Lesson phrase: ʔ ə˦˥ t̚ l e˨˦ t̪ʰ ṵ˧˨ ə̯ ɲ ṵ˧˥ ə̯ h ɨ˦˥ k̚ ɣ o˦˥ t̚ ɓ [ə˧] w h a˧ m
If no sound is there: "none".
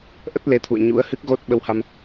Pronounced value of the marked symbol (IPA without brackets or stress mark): ə˧